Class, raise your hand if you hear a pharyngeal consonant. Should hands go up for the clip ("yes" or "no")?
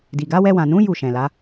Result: no